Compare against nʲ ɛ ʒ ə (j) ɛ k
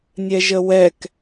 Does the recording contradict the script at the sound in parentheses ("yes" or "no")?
yes